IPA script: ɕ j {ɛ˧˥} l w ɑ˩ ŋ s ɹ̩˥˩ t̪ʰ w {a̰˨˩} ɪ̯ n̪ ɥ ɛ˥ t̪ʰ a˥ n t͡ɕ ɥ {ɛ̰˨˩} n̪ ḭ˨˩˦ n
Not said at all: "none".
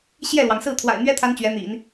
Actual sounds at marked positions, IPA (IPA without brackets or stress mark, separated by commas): ɛ˥˩, a̰˨˩, ɛ˧˥